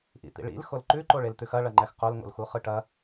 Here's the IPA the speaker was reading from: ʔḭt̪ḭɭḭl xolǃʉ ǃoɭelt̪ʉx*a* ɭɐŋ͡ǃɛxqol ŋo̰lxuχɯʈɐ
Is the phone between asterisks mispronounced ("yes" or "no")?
yes